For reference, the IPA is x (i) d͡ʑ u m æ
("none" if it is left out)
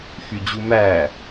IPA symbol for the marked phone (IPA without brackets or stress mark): y